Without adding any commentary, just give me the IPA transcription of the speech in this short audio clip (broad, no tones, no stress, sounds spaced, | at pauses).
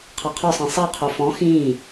qʰ ɑ qʰ ɔ sˤ ĩ sˤ ɑ qʰ o f ɔ̃ x ĩː